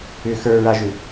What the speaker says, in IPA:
ʏ xə˞ɹaʒʏ

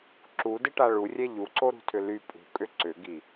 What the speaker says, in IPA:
ǁudɪʈa ɭurʲɛ ʎuǀoɾṳtʰʏ ly pʼṳkʼʏ ǀʏɡi

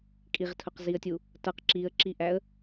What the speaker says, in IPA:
kʼiʁtʰʊqziə̯tʲu | tʌq ǁiə̯ǁiʔæə̯

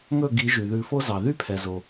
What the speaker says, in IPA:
ŋɵ˥˩ɡi˨˩˦ ʒy˩ðʉ˨˩˦fo˦zɑ˩ ðy˥˩pʰɛ˩zo˩

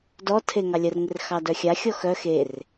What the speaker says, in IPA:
dɔ tʰeŋɑlʲər ŋɪrxɑdœxʲa xʲɔxœ xer

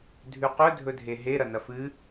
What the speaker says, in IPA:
dʱʉqɵ dʱɵdʱeɦe ɾɐnɐfɨ

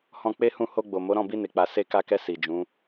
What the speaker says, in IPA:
hɔ̃˧k͡pe˦hũ˦˨ ho˧ɡ͡bo˨mo˨˦ ɾɔ̃˦˨bi˧ne˨k͡pa˨ se˧ka˧kɛ˧ si˨ d͡ʒũ˨˦

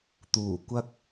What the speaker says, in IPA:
t̪uː˨˩ kʷɐ˥k̚

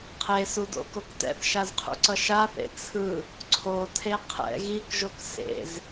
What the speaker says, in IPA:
qʰesudo̰kok tɛ̰θʃazqʰṵǀʌ ʃaθḛ t͡sʰɯ | ǀʰotʰe qʰɛ̰ ɣikʒok sḛz

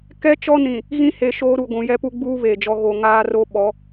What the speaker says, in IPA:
kɛ˦t͡ʃɔ˦nĩ˨ | ɣĩ˦he˨ ʃoː˦ɾu˨ ɡʷũ˨ jɛ˦pu˦ ɡ͡buː˦ βeː˨d͡ʒɔ˦ ɣo˨ ŋaː˦ro˦ɓɔ˨˦

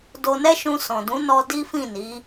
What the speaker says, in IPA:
do˧nɛ˦ʃũ˧ sɔ̃˨dũ˨˦nɔ˧ di˦fĩ˦˨ni˨˦

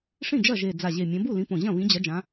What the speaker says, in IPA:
ʂĩ˥˩ d͡ʒɐ˥˩ʒe˨˩ d͡za˨˩ʑe˨˩ mʲɐ̃˨˦ bu˥˩lĩ˨˦põ˨˩ʑɐ̃˥˩ βĩ˨˦d͡ʑɐ˨˦d͡ʒã˨˦

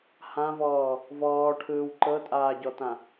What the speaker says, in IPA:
hãvɔː | vɔːʈʰɯːw ǃɤtʼaːɟɔtã

